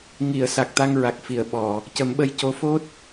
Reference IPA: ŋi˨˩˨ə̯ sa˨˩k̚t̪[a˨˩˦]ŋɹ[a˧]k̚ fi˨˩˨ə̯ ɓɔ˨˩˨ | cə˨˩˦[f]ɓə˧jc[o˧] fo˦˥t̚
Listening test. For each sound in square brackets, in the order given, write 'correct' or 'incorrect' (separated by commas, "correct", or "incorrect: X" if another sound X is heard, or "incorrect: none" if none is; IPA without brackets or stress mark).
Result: incorrect: a˧, incorrect: a˨˩, incorrect: m, incorrect: o˧˥